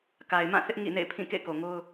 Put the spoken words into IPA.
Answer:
k a˨ ɪ̯ m ã˦˨ θ ɪ˦ ʔ ŋ ḭ˦˨ n ḛ˦˨ ɪ̯ pʰ ĩ˦˨ k ḛ˦˨ ɪ̯ k o˨ ŋ o˦ ʊ̯

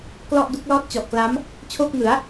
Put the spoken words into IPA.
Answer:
k l ɔ˥˩ ʔ d u˦˥ k̚ l ɔː˥˩ t̚ t͡ɕ ɔ˨˩ ʔ k l a˦˥ m | t͡ɕʰ oː˥˩ k̚ ŋ ɯ˩˦ a̯

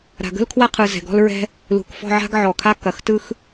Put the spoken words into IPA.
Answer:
ɾ a̤˧ ɡ ə̤˥ l kʰ w a˥ qʰ ɯ˧ z ɛ̤˧ ɡ ɔ̤˥ l ɹ ɛ̤˥ | l ṳ˧˩ k f ɔ̤˥˧ ʕ a̤˥ ɡ ʕ ɔ˧˩ kʰ a˥ k ɐ˧˩ x t ɯ˥ x

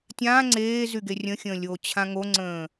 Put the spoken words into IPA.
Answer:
tʲ ãː ŋ͡ǀ eː z y ɡ e rʲ ə̃ xʲ ə̃ː lʲ oː t͡ɕʰ ã ŋ o ŋ͡ǀ ə̃ː

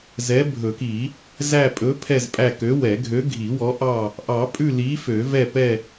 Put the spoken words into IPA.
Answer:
z ɛ˨˥ bʱ ɵ˨˩˦ k i˨˩˦ | z æ˦˨ pʼ ɵ˨˥ pʰ ɛ˦˨ z pʼ æ˦˨ k ø˨˥ w ɛ˨˩˦ ɡʱ ø˨˥ ɡʱ i˨˩˦ w ɔ˨˥ ʔ ɑ˦˨ | ʔ ɑ˨˩˦ pʼ ʉ˦˨ l i˨˥ f ø˨˩˦ v ɛ˦˨ p ɛ˦˨

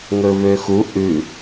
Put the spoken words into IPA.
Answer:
ŋ ɵ v ø x u ʔ ʉ

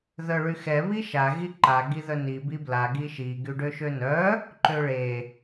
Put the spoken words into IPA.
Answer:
ð œ ɭ y x ɛ β i ʃ a ɣ i ǃ a ɡ i ð œ n i b i b l a ɡ i ʃ i ɡ y ɖ ø ʃ ø n œ | ǃ ø ɭ e

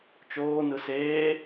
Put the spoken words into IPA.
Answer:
t͡ʃ oː n ɯ s eː

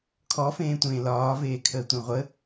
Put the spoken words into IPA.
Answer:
kʰ ɔ f ẽː tʷ ẽː l ɒː v eː kʰ əː tʷ ẽ ʁʷ ə

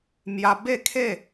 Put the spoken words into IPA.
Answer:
m j a˧ b e˥˧ kʰ e˥˧

